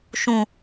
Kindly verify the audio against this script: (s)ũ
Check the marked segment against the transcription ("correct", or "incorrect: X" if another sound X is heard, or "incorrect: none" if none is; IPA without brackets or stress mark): incorrect: ʃ